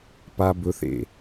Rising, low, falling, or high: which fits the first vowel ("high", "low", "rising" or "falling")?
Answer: high